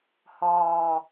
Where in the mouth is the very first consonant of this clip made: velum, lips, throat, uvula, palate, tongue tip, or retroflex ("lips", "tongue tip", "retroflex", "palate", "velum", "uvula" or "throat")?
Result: throat